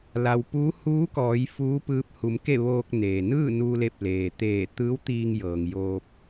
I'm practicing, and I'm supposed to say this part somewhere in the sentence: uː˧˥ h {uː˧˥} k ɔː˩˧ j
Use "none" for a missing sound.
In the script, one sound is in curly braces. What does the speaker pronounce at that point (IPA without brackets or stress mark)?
uː˧˥